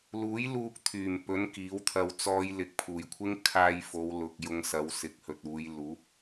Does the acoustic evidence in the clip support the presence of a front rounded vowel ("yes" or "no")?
yes